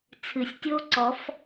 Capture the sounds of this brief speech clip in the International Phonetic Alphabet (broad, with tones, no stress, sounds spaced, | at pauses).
t͡sʰ ɨ˩ sʲ tʲ o˦˥ ǀ ɔ˨˩˦ f